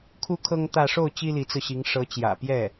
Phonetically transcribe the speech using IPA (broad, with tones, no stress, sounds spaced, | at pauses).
kʰ u˥ kʰ ɤ˥ ŋ t̪ ä˥˧ ʂ o˥˩ ʊ̯ t͡ɕ i˥ l i˧˥ t͡s ɹ̩˧ ɕ i˧˥ ŋ ʂ ɤ˧˥ t͡ɕ j ä̰˨˩ p j ɛ˥˩